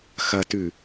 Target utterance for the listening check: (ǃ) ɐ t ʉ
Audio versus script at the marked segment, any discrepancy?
yes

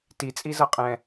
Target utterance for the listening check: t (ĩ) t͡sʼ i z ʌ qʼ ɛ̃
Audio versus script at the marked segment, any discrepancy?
yes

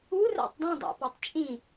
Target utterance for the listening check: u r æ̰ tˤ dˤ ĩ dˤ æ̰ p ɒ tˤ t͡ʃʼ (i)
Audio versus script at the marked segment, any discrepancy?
yes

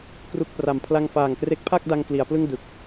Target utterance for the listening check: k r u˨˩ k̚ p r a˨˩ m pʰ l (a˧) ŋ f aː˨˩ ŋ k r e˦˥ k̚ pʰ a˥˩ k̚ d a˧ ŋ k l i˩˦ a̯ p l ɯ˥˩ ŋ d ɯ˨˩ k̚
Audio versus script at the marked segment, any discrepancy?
no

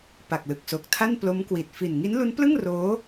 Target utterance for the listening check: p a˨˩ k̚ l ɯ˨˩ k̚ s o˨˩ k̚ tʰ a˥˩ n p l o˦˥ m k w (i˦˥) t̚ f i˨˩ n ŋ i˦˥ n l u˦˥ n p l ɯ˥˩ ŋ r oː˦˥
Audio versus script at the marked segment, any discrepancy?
yes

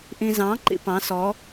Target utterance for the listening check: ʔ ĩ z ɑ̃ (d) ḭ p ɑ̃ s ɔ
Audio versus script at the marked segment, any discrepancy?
yes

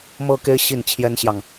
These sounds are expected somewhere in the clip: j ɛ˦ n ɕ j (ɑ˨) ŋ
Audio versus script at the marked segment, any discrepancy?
no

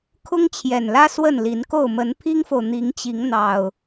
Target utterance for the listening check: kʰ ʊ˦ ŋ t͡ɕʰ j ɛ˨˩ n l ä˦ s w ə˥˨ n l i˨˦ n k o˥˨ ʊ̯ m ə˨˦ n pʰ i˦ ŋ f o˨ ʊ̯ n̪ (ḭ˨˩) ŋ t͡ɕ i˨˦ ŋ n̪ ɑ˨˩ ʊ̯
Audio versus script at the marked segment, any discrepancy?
yes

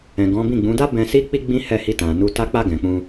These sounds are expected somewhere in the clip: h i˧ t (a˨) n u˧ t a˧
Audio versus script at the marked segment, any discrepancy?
yes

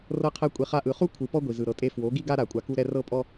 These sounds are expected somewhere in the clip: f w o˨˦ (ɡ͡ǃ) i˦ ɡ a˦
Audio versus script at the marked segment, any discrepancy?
yes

